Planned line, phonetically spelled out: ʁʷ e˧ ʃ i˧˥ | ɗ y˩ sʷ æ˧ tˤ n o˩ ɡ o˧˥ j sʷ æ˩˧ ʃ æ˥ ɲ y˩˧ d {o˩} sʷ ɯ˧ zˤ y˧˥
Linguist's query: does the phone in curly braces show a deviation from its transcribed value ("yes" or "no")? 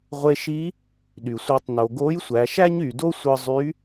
yes